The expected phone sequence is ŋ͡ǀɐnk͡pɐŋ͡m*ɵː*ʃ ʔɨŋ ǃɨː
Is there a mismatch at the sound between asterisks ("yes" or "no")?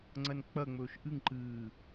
no